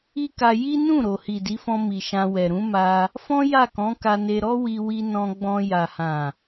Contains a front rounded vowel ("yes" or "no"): no